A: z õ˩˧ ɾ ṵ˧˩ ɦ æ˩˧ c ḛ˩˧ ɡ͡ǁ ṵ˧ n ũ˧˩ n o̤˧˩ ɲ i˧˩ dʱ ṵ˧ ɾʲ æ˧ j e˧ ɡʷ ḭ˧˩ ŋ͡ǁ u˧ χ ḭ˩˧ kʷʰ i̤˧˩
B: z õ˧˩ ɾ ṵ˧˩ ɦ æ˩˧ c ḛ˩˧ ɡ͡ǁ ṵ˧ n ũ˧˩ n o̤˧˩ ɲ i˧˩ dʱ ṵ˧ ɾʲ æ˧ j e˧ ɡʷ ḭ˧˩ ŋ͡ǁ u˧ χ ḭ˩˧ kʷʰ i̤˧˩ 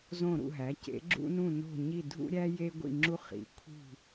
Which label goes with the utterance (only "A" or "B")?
B